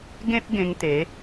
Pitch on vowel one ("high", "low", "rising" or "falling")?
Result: high